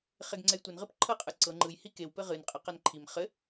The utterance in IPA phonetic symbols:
χ e ɡ ŋ͡ǀ ɛ j tʷ ɘ n ʁ ɨ p ǃʰ ɤ qʼ ɯ ǀ ɤ ŋ͡ǃ ɯ j h i k e w p ɘ ʁ ɨ n qʼ a q a n ǃʰ i m χ ɘ

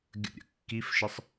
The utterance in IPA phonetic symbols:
ɡʲ ə̰ ɾʲ ə̰ kː i f ʃ ə sˤ

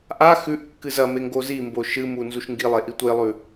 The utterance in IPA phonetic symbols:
ʔ a x ʉ ʔ kː ɨ z ɐ m e ŋ ɡ o z i m b o ʃ ɨ m u n z u ʃ ŋ ɡ i lˠ e ʔ i tʷ e lˠ ʉ

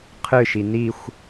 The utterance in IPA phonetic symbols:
qʰ ɨ ʃ i n i xʷ

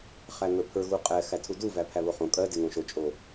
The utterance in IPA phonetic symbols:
χ æ ŋ ə˞ pʰ ə˞ ɣ u qʼ ɛ x æ tʰ u d u v æ pʰ æ β o χ õ kʼ ɜ d e ŋ õ ʃ o t͡ʃʼ o

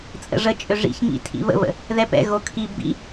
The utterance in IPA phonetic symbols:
t͡sʼ ə̰ ʐ ə t͡ʃʼ ʏ ʐ ḭ ç ŋ ḭ tʰ ḭ β ə̰ β ə̰ | ð ɛ p ɛ̰ ɣ o kʰ i b ḭ

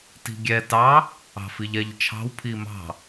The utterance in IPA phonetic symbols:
t i̤ ɡʲ ɛ t ɑ | ɑ̤ f i ʎ ɛ ʎ t͡ʃʰ ɑ̤ w pʰ i m ɑ̤

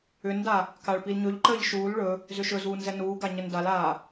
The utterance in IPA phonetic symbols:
ʏ n d a | k a ɭ p i l ɲ ɵ ʎ ǃ əː ʎ ʃ uː l ɭ ɵ | z ʏ ʃ ɵ z uː n z ɛ n uː ɡ a ɲ ə n d a l aː

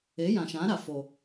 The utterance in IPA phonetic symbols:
e˨˦ j ã˨ ʃ ã˨˦ ɾ a˨ f o˨

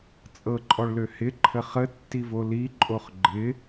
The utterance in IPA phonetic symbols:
t͡sʼ ɤ ǃʼ ɔ ɭ l ø h ɪ ǃʰ ə χ ə tː i v o l i ǃʼ o χ ɡ͡ǃ ɪ

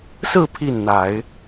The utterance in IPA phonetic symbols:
s ɹ̩˥˧ pʰ i˥˩ n n̪ a˨˩˦ ɪ̯

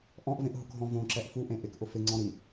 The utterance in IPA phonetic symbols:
ʔ ɔ̃ ʔ v ẽ ʔ ɦ ʊ k ɦ ɔ̃ v õ ǁ ɛ ʔ f u ʔ ẽ ʔ ɪ k ʔ ʊ f ɪ ŋ͡ǀ ɔ̃ ɾ i

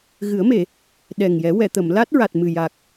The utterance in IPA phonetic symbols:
ɣ ɨ˨˩˦ ə̯ m e˨˩˨ | ɗ ɛ˨˩ ŋ j ɛ˨˩˦ w ɛ˨˩˨ t̪ ə˨˩˨ m l a˦˥ t̚ ɹ a˨˩ t̚ m ɨ˨˩ j a˨˩ k̚

